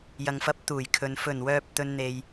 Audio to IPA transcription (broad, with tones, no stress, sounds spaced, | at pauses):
j ɐ˨ ŋ f ɐ˨˥ p̚ t̪ uː˨˩ j kʰ ɵ˨ n f ɵ˨˩ n w œː˨ p̚ t̪ ɵ˨ n n̪ e˨ j